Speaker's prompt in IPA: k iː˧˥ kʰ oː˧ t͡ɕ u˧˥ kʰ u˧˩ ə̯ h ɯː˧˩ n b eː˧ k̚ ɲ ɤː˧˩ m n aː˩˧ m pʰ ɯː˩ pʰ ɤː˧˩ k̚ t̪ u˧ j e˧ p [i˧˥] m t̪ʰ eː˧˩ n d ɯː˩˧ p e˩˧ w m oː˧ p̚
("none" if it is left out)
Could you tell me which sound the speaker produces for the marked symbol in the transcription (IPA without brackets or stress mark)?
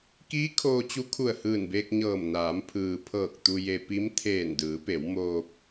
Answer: i˧˥